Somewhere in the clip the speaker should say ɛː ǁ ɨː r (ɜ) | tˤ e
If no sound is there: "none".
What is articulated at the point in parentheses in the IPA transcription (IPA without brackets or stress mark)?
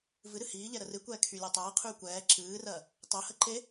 ɜ